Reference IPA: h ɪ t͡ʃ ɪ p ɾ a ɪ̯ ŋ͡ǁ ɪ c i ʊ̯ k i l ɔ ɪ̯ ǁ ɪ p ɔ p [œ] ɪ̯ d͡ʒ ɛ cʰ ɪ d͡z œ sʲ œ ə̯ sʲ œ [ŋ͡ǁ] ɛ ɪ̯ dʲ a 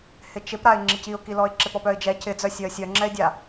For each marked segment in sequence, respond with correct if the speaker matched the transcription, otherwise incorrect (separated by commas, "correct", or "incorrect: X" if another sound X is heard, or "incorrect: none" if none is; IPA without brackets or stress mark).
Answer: correct, correct